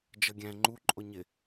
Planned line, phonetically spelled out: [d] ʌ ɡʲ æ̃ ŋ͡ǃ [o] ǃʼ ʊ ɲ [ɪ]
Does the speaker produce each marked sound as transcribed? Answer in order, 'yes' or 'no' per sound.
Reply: no, no, yes

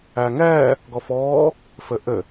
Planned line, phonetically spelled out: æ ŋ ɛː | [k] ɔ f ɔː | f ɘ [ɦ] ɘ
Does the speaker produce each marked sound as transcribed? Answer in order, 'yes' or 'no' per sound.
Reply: no, no

